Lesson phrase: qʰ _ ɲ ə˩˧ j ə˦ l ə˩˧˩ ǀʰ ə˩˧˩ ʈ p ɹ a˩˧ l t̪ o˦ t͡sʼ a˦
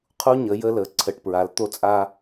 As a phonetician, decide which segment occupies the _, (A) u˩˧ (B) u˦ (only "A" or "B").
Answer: B